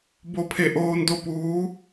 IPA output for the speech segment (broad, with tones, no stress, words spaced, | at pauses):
bo˧pʰe˧˩ʔoː˧n do˥˨puː˧˥